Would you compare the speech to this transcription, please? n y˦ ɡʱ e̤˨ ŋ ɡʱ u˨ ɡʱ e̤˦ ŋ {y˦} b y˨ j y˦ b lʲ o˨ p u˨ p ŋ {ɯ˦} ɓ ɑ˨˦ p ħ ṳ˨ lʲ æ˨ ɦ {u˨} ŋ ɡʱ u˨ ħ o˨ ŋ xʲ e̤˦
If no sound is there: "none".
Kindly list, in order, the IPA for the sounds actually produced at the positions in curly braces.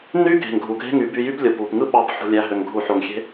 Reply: y˨˦, ɯ˦, ø˨

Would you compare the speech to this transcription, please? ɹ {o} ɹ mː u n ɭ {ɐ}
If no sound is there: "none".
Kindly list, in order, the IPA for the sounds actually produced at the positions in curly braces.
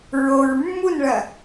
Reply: o, ɐ

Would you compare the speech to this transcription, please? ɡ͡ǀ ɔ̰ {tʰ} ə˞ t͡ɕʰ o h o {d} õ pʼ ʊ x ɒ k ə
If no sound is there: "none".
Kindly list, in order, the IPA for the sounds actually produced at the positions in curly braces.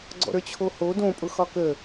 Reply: ɾ, d

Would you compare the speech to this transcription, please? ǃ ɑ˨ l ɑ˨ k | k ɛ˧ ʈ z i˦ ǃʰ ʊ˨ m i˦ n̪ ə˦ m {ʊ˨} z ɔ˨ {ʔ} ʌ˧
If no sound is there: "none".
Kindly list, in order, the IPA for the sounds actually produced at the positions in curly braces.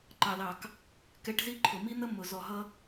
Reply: ʊ˨, ɦ

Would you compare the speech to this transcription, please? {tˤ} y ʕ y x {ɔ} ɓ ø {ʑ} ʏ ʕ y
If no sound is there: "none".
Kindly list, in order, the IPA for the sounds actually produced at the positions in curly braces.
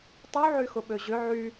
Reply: tˤ, ʊ, ʑ

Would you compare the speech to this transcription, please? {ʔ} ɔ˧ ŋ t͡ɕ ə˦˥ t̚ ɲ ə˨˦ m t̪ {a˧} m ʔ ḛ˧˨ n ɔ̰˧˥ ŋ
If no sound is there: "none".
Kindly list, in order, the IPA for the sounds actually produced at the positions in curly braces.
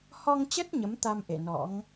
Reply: h, a˧

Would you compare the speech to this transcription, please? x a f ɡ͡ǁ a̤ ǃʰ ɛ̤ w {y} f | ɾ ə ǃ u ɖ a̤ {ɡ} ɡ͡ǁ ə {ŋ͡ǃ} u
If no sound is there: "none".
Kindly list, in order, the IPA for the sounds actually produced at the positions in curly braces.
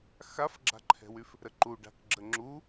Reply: y, k, ŋ͡ǁ

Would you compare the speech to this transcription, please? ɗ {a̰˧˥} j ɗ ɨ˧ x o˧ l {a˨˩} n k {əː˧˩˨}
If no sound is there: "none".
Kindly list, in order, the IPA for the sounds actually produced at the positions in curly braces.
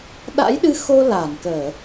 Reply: a̰˧˥, a˧˩, əː˧˩˨

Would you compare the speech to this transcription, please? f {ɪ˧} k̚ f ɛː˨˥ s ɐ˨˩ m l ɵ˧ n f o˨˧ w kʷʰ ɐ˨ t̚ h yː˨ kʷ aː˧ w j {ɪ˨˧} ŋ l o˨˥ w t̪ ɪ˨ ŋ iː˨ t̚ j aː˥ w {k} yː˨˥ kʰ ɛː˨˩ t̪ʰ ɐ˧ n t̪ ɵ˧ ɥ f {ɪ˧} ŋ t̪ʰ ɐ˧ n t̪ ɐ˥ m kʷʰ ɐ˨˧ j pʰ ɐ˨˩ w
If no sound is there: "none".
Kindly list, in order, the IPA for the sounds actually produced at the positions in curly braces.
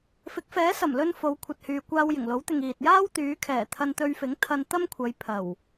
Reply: ɪ˨˥, ɪ˨˩, t̪, ɪ˨˥

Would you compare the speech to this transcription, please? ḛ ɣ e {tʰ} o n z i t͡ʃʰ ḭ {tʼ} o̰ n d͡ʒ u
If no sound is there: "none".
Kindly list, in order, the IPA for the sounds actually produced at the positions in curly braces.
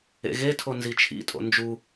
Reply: tʰ, tʼ

